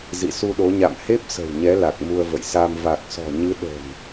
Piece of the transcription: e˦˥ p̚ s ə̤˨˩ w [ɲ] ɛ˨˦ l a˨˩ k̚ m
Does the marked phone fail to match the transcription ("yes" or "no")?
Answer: no